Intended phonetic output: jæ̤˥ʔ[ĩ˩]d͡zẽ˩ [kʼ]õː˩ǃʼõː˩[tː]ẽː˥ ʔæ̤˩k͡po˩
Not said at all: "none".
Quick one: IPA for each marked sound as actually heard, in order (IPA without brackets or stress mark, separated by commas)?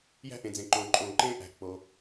ẽ˩, ǃ, ǃ